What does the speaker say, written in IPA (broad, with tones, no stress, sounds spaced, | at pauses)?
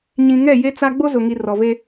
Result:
ɲ ĩ˨ ŋ ɛ˦˨ j e˦ t͡s a˦ ɡ͡b o˦ z ʊ˨ ŋ i˨ r ɔ˨ v e˦